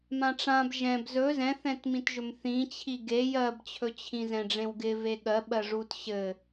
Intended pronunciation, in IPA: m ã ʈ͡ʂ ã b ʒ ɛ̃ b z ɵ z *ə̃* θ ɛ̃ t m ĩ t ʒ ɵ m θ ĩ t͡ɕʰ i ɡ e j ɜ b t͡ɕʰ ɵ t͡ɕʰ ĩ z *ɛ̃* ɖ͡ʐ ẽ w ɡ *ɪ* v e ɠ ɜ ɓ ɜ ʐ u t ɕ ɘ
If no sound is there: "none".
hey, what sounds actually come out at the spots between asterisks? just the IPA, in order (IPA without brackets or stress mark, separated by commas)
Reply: ɛ̃, ɛ̃, ɪ